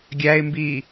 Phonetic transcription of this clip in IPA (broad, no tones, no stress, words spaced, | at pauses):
ɡʲæɪ̯mbi